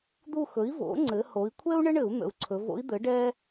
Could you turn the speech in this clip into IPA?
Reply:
d̪ u˦˨ x ɵ˩˥ i̯ v o̰˩˥ ŋ͡ǀ ɘ˩˧ h o˩˧ i̯ kʷʰ ɛ˥ u̯ ɳ ɘ˥ ɳ ɘ˧˩˧ u̯ n̪ ə̰˩˧ u̯ ǀʰ ɵ˩˧ v o̰˧˥ i̯ d̪ ɘ˩˥ ɖ ɛ˥

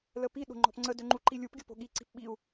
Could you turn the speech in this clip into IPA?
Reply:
l ə p i ɗ o̤ ŋ͡ǃ ɔ̤ p ŋ͡ǀ ə d ø ŋ͡ǃ u ǃ i lʲ u p ɡʲ o p o̤ ɠ i ǀ i̤ p ɓ i u̯

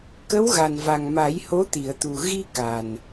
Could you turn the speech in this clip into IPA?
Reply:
k ə˧˥ w ɣ a˨˩ n v a˨˩ ŋ m a˨˩˦ j h o˧˥ t̪ i˨˩˨ ə̯ t̪ u˨˩ ɣ i˧ k a˨˩ n

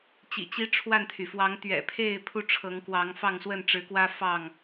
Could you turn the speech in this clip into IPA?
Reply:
t͡ɕ ḭ˨˩ t͡ɕ i˦ ʈ͡ʂʰ w a˥˨ n t̪ʰ y˩ f w ɑ˨˦ ŋ t̪ ɥ ɛ̰˨˩ pʰ e˥˨ ɪ̯ pʰ u˦ ʈ͡ʂʰ ɤ˨˦ ŋ k w ɑ˨˦ ŋ f ɑ˥˨ ŋ s w ə˥˨ n ʈ͡ʂ ɻ̩˨˦ k w ä˦ f ɑ˥˨ ŋ

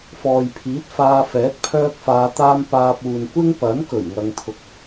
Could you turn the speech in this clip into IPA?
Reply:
f ɔː˨ j pʰ iː˨˥ t̚ f aː˧ f ɛː˨˥ t̚ pʰ œː˥ k̚ f aː˧ t̪ aː˥ m p aː˧ p̚ uː˨ n kʷ ɪ˥ ŋ p ɐ˨˥ n k ɵ˨˩ ɥ ŋ ɐ˧ ŋ t̪ʰ ʊ˨ k̚

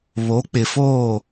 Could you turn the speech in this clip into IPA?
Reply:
β o˨˦ k͡p ɪ˨ f oː˦˨

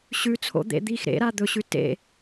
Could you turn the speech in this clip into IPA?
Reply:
ɕ ʉ t͡sʰ o̰ d̪ ḛ d̪ i x ɾ ḛ ɾ a d̪ ɵ ɕ ʉ t ḛ

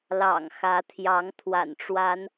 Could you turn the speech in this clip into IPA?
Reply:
l ɑ̰˨˩ ŋ x ä˨˦ t̪ʰ j ɑ˨˦ ŋ t̪ʰ w a̰˨˩ n ʈ͡ʂ w a˨˦ n

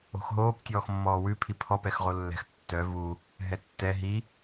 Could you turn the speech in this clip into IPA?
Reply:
o̤ x ɦ oː p tʲ ɔː x mː ɔː w ʉ pʰ i pʰ ɔ p ɛ x ʁ o lː ɛ̤ x tː œ v u | ɦ ɛ tː ɛ ɦ i

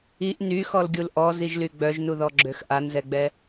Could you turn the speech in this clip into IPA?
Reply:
i ʔ n y x ɔ l ɡʲ u l ʔ ɔ z i ʒ l y ɡ͡b œ ʒ n u ð ɔ ɡ͡ǁ ø x ʔ a n z ɛ ɡ͡b ɛ

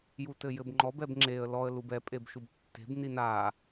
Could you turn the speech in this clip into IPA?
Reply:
j u t ɘ j ɘ b ŋ͡ǃ ɔ b ɛ b ŋ͡ǁ e ə̯ l ɔ ə̯ l u b ɛ pʼ e b ʃ u b tː e̤ b n i n a

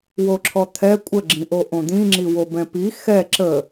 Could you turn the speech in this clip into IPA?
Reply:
w o ǁʰ ɔ t̪ʰ ɛ kʷʼ ə ɡ͡ǁ ĩ ʔ o ʔ õ d̪ ĩ ŋ͡ǁ i w o b ɛ̃ p i x ɛ ǁ ə

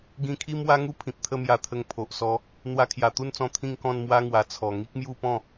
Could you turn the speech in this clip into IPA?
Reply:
ɡ ĩ˧ kʰ i˦ m w a˦ ŋ u˦ pʰ ĩ˨ p̚ t̪ʰ ə˥˧ m j a˧ t̪ʰ ə˧ ŋ pʰ o˨ ʔ s ɔ˧ | n̪ w a˧ kʰ j a˨˩ t̪ u˥˧ n t͡s ɔ̃˧ t̪ʰ ĩ˥˧ ŋ k ɔ̃˥˧ n m w a˦ ŋ w a˨˩ t͡sʰ ɔ˨˩ ŋ i˦ k̚ m j u˥˧ p ɔ̃˥˧

